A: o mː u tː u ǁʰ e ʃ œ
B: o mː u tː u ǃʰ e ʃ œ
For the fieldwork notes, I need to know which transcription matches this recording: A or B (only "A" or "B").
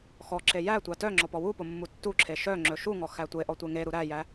A